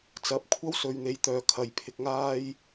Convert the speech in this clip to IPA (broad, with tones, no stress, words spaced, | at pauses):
t͡sɐ˨˥p̚kʷʰɐ˥w sɵ˨ɥn̪e˨˧jt̪œː˨ kʰɐ˨jpʰɪ˧k̚ŋaː˥j